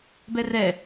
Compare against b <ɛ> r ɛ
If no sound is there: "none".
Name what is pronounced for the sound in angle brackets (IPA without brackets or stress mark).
ɛ